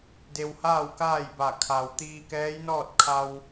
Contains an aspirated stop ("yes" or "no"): yes